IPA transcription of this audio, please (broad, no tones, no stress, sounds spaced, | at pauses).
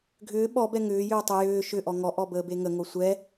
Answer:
ɡʱ ʏː ɓ ɔ b ɛ ŋ ʏː j ʏː tˤ ʏ j ʏː ʃ ʏ ʔ ɔ ŋ ɔ ʔ ɔ b əː b e ŋ ə ŋ o sʷ ɛ